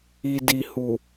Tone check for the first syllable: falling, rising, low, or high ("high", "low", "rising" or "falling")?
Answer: low